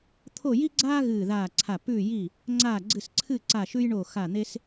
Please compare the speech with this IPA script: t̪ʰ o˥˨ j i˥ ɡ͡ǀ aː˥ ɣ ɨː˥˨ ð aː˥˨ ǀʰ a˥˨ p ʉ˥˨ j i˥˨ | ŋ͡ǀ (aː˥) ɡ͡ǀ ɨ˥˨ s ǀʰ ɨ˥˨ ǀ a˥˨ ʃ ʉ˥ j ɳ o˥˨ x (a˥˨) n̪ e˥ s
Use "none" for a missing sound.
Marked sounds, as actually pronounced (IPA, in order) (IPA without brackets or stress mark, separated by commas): aː˥˨, a˥˨